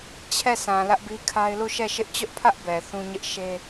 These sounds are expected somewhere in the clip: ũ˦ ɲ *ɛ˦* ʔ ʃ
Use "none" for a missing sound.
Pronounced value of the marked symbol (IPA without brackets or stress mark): ɪ˦